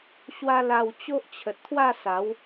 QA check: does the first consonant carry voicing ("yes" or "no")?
no